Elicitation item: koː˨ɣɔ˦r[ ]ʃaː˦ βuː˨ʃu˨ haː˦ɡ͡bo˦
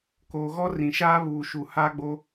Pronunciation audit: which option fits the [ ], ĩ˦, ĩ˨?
ĩ˨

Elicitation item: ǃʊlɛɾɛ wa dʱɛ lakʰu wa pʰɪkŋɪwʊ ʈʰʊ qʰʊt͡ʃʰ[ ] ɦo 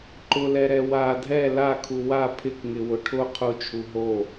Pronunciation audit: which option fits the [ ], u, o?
u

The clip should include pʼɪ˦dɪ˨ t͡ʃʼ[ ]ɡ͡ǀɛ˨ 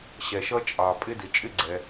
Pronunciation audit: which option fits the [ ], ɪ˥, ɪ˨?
ɪ˥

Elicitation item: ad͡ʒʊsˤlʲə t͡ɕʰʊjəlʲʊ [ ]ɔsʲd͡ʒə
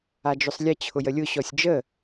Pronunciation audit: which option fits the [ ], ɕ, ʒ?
ɕ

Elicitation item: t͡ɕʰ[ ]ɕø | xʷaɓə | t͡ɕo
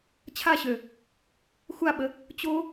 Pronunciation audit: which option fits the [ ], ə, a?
a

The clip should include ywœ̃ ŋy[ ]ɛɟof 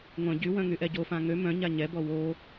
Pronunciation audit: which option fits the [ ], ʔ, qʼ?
ʔ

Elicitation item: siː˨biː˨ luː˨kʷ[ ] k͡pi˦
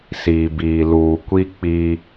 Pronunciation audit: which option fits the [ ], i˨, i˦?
i˦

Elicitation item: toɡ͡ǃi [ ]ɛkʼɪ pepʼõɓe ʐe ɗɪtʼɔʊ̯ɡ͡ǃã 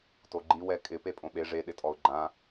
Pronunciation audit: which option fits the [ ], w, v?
w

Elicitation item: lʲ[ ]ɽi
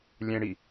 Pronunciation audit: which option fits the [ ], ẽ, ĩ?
ẽ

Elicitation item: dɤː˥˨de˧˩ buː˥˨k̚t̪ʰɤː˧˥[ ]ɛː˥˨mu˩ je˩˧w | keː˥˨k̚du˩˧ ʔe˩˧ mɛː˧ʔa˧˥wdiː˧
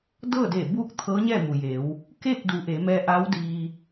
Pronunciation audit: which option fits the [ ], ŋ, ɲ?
ɲ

